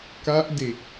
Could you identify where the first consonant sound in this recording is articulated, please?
velar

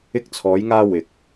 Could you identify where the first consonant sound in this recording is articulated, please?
velar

